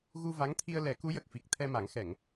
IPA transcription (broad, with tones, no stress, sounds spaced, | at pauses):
ɣ u˧ v a˧˥ ŋ t̪ʰ i˧ ə̯ l ɛ˨˩˦ k u˧˥ j ə˨˩ k̚ f i˨˩ k̚ t̪ʰ ɛ˧ m a˨˩˦ ŋ x ɛ˨˩˨ ŋ